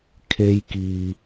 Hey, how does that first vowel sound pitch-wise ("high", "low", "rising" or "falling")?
high